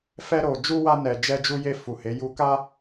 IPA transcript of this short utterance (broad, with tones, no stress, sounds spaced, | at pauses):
f ɛ˧ ɾ o˨ d͡ʒ u˧ w a˧ n ɛ˨ d͡ʒ ɛ˧ d͡ʒ u˧ j e˧ f u˨ h e˨˦ j u˦ k a˧